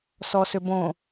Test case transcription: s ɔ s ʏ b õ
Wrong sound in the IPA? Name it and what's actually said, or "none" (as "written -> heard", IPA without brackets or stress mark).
none